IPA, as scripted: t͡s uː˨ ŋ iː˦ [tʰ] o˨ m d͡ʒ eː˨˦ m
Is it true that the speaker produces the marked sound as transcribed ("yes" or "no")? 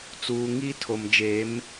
yes